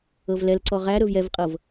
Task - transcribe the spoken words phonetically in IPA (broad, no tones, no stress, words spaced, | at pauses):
ɤvlɛlǀɔ ʁæɾɵv jɛvqʼɤv